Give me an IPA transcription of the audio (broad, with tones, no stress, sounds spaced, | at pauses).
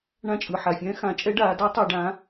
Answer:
ɳ ã˦˨ t͡ʃʼ ɯ˨˩ ħ a˨˩ fʲ ɛ̃ː˧˥ x ã˩˧ t͡ʃʼ ɛ˧˥ ɖ aː˩˧ d ɔ˧˥ tˤ a˦˨ ɖ ã˧˥